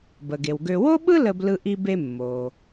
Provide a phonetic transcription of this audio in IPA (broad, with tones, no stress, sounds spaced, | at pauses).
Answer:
b ə˩ ɡ e˩ w ɡ ø˧ w o˥ ɓ ɯ˥ l ə˧ b l ɯ˧ ʔ i˧ b e˧ mː o˩